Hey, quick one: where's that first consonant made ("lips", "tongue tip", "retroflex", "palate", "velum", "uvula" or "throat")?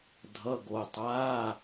tongue tip